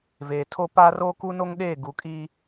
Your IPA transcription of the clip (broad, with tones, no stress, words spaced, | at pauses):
veː˨tʰo˦ paː˦roː˦ku˦no˦ŋ ɗeː˦˨ ɡu˨kʼi˦